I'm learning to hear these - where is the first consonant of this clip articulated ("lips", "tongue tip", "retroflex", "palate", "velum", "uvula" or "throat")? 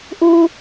throat